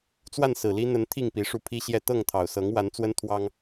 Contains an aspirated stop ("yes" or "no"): yes